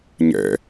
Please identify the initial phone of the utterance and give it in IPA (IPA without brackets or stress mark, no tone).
ɲ